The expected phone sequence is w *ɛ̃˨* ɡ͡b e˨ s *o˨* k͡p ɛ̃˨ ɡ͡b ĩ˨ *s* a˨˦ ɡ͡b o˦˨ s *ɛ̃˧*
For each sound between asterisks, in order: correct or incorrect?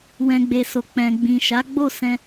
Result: correct, correct, incorrect, correct

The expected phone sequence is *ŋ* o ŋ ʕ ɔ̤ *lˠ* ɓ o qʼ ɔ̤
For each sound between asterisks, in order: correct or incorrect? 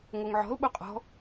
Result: correct, incorrect

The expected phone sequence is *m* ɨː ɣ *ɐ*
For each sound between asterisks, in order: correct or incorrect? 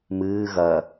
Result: correct, correct

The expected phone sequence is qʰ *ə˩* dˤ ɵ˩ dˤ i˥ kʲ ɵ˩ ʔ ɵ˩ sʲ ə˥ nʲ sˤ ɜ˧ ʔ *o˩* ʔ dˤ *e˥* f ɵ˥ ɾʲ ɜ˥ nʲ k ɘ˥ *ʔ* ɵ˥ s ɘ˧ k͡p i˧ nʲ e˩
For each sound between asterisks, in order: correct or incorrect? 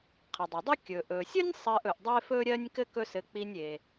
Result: correct, incorrect, correct, incorrect

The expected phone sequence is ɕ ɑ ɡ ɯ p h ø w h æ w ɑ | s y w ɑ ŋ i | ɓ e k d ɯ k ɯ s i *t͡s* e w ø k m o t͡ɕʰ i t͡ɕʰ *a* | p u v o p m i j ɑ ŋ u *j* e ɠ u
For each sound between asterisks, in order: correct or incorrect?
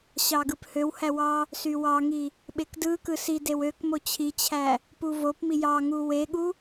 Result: incorrect, incorrect, incorrect

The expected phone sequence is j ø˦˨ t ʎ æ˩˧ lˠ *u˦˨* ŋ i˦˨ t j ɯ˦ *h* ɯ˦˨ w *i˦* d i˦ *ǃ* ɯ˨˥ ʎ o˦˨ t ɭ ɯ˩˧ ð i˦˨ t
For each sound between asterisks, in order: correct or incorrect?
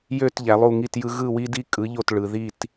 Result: correct, incorrect, correct, incorrect

